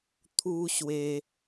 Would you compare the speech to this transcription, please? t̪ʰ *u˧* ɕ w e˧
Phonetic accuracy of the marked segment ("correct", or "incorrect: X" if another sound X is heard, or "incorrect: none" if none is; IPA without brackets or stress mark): correct